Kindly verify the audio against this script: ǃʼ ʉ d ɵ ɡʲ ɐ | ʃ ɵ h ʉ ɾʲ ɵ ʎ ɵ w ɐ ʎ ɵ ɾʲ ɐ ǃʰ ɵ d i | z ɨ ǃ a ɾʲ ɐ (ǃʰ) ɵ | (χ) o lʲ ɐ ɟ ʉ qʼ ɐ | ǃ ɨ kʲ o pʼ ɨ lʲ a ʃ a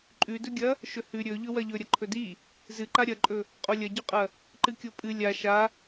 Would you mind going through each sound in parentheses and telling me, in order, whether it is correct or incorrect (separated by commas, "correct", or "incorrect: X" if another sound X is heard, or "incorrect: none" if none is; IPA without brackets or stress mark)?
incorrect: ǃʼ, incorrect: qʼ